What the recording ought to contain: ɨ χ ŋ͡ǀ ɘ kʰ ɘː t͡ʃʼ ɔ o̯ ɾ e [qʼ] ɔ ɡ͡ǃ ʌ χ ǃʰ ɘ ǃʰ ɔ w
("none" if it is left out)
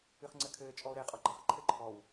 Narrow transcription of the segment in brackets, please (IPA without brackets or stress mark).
qʼ